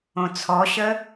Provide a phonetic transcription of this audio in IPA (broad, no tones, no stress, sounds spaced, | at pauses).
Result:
õ t͡sʰ ɔ ɕ ə